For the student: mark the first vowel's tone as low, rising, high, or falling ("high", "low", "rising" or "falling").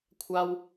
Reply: high